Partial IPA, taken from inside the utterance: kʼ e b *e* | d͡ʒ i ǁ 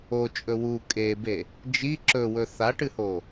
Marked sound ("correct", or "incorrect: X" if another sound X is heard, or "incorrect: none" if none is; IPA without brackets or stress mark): correct